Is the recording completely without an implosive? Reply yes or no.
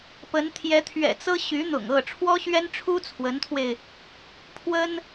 yes